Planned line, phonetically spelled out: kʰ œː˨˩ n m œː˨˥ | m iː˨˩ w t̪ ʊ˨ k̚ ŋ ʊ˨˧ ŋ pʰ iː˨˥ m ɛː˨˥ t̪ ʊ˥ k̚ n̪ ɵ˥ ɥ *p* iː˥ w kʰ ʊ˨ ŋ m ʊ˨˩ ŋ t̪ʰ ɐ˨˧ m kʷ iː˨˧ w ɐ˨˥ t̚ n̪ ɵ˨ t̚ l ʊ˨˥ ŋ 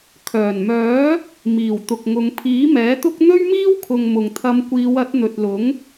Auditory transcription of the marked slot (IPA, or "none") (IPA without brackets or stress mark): m